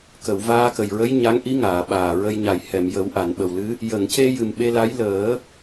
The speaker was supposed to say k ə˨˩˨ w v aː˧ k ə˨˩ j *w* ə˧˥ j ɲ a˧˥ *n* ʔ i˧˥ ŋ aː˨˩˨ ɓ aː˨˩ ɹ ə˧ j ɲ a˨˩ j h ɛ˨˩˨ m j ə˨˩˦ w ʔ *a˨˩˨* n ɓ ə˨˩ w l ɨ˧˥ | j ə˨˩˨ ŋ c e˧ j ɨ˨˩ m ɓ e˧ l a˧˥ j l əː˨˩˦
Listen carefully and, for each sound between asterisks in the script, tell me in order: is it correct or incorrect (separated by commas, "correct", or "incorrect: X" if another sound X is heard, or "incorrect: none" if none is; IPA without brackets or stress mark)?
incorrect: ɹ, incorrect: ŋ, correct